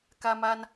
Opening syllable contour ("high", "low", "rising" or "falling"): high